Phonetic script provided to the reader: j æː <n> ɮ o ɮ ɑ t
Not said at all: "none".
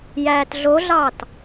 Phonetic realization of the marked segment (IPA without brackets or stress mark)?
t